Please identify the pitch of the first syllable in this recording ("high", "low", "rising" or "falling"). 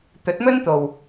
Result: rising